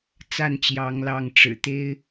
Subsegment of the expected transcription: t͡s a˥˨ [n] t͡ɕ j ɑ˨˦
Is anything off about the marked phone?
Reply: no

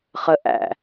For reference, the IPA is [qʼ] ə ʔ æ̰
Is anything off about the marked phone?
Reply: yes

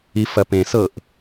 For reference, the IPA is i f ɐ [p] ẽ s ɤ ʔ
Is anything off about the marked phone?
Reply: no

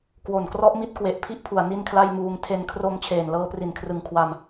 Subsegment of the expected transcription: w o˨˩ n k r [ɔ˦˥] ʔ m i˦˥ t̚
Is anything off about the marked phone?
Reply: no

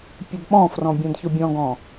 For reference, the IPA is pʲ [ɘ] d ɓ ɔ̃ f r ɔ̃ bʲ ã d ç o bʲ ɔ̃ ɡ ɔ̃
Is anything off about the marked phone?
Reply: no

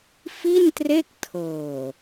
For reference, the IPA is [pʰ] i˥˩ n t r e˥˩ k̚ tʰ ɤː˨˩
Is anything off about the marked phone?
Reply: yes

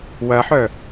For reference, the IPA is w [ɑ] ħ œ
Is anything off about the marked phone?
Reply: yes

